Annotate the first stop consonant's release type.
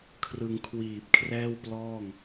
aspirated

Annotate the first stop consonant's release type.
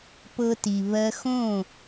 plain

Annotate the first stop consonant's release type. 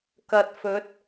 plain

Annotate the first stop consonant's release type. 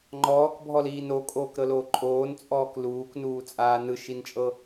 click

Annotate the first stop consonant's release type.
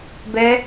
plain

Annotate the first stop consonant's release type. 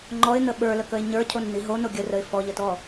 click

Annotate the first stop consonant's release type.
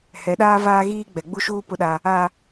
implosive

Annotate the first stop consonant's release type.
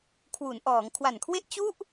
aspirated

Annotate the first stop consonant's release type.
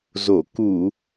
plain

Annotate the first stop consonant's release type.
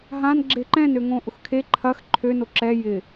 click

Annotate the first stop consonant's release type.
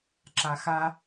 click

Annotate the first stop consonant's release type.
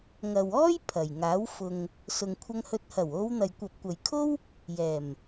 aspirated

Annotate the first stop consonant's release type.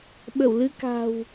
implosive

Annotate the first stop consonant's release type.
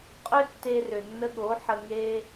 ejective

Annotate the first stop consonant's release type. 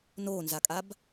ejective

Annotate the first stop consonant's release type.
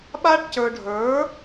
implosive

